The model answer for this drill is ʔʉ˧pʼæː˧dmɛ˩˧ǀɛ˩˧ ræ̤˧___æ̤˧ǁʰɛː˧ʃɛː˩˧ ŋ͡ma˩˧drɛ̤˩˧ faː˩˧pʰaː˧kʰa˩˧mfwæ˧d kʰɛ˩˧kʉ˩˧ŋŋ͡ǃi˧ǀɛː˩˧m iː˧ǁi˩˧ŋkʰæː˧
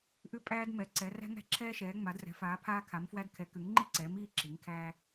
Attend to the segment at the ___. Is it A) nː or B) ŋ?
B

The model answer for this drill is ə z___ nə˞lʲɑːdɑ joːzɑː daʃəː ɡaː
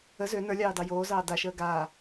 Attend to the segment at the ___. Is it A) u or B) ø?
B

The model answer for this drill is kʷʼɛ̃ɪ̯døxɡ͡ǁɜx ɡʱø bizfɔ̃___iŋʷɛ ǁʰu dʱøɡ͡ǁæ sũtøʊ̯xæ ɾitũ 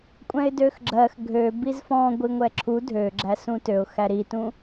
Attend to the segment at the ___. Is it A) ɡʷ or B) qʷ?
A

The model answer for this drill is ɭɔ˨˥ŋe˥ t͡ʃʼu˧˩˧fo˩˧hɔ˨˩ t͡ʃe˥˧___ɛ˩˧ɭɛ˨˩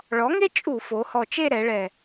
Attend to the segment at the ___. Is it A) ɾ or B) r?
A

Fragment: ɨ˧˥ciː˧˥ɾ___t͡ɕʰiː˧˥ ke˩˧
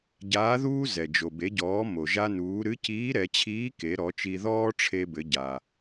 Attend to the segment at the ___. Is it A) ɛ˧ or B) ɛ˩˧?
B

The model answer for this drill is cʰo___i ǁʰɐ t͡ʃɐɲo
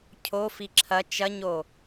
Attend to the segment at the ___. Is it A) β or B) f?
B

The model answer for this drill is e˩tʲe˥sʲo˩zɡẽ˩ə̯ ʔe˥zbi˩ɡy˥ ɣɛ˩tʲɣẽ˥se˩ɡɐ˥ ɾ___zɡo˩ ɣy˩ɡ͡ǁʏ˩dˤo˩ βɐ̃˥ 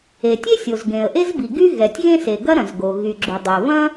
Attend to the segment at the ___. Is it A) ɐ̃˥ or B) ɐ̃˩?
B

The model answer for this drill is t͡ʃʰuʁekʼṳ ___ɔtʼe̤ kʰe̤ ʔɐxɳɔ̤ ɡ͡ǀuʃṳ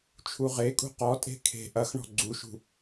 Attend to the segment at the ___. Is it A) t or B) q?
B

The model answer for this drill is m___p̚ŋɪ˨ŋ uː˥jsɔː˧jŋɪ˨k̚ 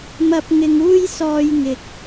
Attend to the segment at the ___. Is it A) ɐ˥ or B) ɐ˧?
B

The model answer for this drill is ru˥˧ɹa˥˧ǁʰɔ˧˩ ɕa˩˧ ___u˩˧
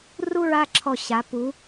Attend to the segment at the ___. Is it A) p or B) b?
A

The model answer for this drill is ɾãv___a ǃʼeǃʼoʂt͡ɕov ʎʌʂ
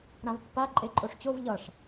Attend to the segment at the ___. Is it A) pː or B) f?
A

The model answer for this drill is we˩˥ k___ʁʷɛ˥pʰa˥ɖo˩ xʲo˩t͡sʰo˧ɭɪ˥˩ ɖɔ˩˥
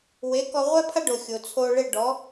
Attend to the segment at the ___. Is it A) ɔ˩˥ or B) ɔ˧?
B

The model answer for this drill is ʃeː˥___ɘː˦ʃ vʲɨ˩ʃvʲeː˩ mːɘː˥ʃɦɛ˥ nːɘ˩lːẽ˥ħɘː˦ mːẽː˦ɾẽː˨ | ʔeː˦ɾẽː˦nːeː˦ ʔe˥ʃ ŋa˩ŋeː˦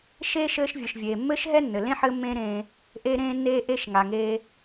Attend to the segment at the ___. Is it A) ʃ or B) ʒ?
A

